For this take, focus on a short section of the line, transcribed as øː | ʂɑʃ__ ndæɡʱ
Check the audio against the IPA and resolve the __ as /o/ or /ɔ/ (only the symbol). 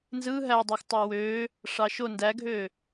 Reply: o